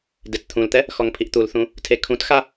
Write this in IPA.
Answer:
d e t t̪ʰ ũ l t̪ ɛ | x ɔ ŋ pʰ i ʔ t̪ u l θ ũ | tʰ e kʰ ũ t x a

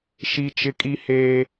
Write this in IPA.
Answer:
ʃ i˦ t͡ʃ ɪ˦ kʼ i˦ h eː˦

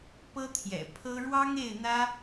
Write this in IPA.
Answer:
p ɤ˥ t̪ʰ j ɛ̰˨˩ pʰ ɤ˥ ɻ w ɑ˥ ŋ e˥˩ ɪ̯ n̪ ä˥

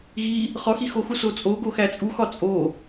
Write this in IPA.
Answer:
ɣ i | χ ɒ x i x o x u s o t͡sʼ o ɡ o x æ t͡sʼ u x ɒ t͡sʼ o

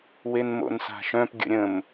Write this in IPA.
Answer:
w e n m o̰ n s a̤ ʃ œ̃ p ɡʲ ə̰ ɾʲ ə̃ m

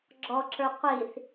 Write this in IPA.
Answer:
ɡ͡ǁ ɔ ǁ ə˞ qʷ i θ

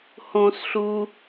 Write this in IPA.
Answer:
h õ s ɬ u

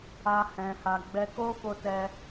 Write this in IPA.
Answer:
a˦ h ɛ̃˧ h a˧ ɡ͡b ɛ˦ k o˦ f o˧ t ɛ˦

